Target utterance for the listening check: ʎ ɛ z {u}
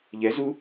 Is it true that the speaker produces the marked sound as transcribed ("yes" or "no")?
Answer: yes